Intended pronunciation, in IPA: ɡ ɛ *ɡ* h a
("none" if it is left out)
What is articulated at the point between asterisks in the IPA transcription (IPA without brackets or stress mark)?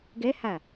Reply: none